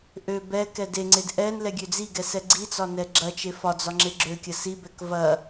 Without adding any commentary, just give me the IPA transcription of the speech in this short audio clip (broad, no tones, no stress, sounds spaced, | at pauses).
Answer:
ʔ ø b ɛ k ɛ d e ŋ͡ǀ e d ʔ ɛ n l ɛ ɡʲ ø d͡z i ɡ ɛ s ɛ ɡ͡ǀ i t͡s ɒ n ɛ ɡ͡ǁ ɐ t͡ʃ e f ɒ d͡z ɒ ŋ͡ǁ e ɡ͡ǁ ø kʲ ɐ s i b ɛ k v ɐ